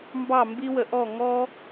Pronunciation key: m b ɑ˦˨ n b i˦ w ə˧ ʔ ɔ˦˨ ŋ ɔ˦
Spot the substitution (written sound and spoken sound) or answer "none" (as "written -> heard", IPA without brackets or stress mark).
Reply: n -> m